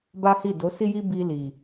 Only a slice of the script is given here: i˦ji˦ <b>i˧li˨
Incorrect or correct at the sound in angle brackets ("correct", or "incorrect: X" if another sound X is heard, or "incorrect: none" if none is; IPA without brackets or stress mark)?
correct